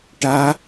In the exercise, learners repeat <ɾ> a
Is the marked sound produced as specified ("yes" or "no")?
no